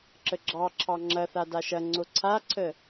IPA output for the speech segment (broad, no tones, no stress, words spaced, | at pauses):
ǁəɡ͡ǁɑǁʰɑ ŋ͡ǁɐθa daʃɐŋ͡ǀo ǀʰaǀʰə